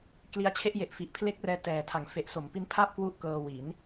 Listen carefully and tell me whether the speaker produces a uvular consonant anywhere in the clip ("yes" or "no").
no